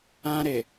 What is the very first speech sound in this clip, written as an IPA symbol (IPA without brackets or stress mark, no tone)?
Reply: ã